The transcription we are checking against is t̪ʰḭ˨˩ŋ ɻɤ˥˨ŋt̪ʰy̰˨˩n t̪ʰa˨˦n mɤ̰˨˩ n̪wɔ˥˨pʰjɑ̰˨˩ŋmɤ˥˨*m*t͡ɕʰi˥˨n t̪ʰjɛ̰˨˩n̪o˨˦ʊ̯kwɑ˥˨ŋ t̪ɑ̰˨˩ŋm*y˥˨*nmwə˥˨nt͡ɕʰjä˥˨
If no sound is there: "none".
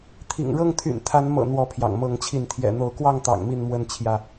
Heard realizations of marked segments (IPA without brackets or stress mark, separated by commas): ŋ, i˥˨